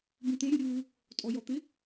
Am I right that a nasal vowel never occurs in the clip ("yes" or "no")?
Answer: no